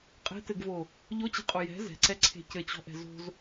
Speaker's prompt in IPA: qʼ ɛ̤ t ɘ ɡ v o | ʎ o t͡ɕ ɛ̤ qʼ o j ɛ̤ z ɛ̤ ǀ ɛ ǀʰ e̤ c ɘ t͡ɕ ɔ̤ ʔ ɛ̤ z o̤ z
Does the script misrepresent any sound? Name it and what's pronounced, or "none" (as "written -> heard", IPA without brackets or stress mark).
none